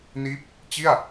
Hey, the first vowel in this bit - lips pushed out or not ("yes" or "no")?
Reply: no